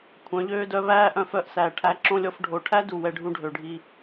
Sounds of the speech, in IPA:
kʷʰ œ̃˨˦ ʎ øː˦ d œ˦ β æː˦ ʔ œ̃˧ f œ˧ ʔ s æː˨ ʈʰ æ˧ ǁ õ˦ lʲ ɔ˧ f ɖʱ o˨ ʈʰ æ˦ d u˨ w ɛ˧ ɖʱ ũ˧ ɖʱ ø˨ ɖʱ i˧

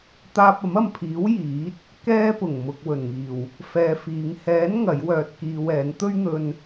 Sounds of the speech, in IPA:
t̪ aː˧ p̚ ɐ˨˥ m ɐ˨ m pʰ iː˨˥ w j iː˨˥ t̚ | k ɛː˥ p ʊ˨˩ ŋ m ʊ˨ k̚ w ɵ˨˩ n ŋ iː˨˩ w | f ɛː˧ f iː˨˧ ŋ h ɛː˨˥ n ŋ ɐ˨˥ j w œː˧ t̚ k iː˧ w ɛː˨˥ n t̪ ɵ˥ ɥ n̪ ɵ˧ n

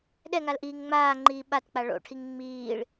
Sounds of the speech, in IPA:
ɗ ɛ ŋ a l ʔ iː ŋ ŋ͡m aː ŋ͡ǃ iː ɓ a t k͡p a ɭ o̰ ʈʰ i ŋ ŋ͡m iː ɭ

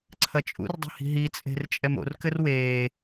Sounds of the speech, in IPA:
ǀʰ ɐ t͡ʃʼ ṵ r dˤ i̤ h i̤ ɦ i t͡sʼ e̤ r t͡ʃʼ ɛ m o̰ r k ɘ r w eː

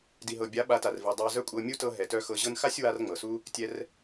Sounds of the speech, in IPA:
d i˨ ɦ ɤ˨ bʲ a˨˦ ɓ a˨˦ t a˨ r v i˨ dˤ a˧ z œ˦ kʷʼ ɤ˧ mʲ u˦ t ɤ˧ ɦ ɛ˨ t œ˧ x ɤ˧ ʑ ɤ˧ n x a˦ sʲ w a˧ r ŋ͡m ɤ˨ s u˦ | tʲ ɛ˧ r

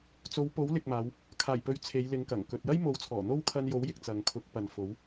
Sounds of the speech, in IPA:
t͡s o˨˧ w p o˨˥ w l ɪ˨ k̚ m aː˨˧ w | kʰ aː˨˩ j p ɵ˨˧ ɥ t͡sʰ e˨˧ j l ɪ˨˧ ŋ k ɐ˨˩ ŋ k ɵ˨ t̚ j ɐ˥ j m o˨˥ w t͡sʰ ɔː˨˩ n̪ o˥ w kʰ ɐ˧ n j o˨˥ w j ɪ˨ k̚ t͡s ɐ˨ ŋ kʰ ʊ˨˥ k̚ p ɐ˨ n f o˨˥ w

